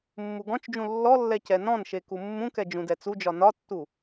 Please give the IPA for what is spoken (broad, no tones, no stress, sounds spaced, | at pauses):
mː u ɡ ɔ̃ t͡ʃ d͡ʒ ũ lː ɔ lː ɛ c ɛ n ɔ̃ n ʃ e k u mː ũ k ɛ d͡ʒ ũ d ɛ t͡s u d͡ʒ ɒ n ɒ tː u